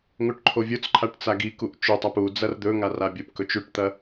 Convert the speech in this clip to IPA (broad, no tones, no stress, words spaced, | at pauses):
ŋoʈǃʰovʲot͡sǃʰaʈ t͡saɡikuʔ t͡ʃɵtˤap u d͡zɐrd̪ɵŋar abʲopkɵt͡ʃ ʉʈt̪ɐ